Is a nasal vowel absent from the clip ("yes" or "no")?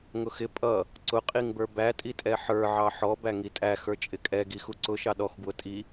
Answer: yes